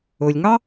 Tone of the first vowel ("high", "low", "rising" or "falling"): low